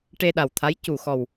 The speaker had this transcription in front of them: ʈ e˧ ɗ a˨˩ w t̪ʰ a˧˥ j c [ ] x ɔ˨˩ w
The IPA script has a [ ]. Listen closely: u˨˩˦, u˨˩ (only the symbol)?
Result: u˨˩